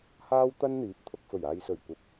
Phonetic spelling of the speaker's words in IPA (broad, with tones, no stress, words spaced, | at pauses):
haː˥wt̪ɐ˥nn̪iː˨˥p̚t̪ʰʊ˧k̚ fɵ˨˩ɥaː˨jsɵ˨˩ɥ kʷɐ˧p̚